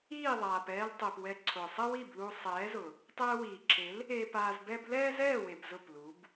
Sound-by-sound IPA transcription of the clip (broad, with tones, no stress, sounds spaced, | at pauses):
iː˦˨ ðˤ aː˨ p ɛː˧ l tˤ e˨ p w ɛ˧ ǀʰ ʊː˨ sˤ ɛ˦ w i˦˨ b l u˧ sˤ ɛː˨˦ z ʊ˨ | tˤ ɛː˧ w iː˨ ǁʰ e˨˦ l | e˧ p aː˧ z b ɛ˦ b l ɛː˦ z ɛː˦˨ w e˨ b z ʊ˦˨ p l u˨˦ b